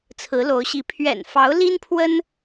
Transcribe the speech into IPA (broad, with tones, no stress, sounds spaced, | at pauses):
t͡sʰ ɹ̩˧˥ l o˧˥ ʊ̯ ɕ i˧˥ pʰ ɥ ɛ̰˨˩ n f ɑ˧˥ ʊ̯ l i˥ n pʰ w ə˥ n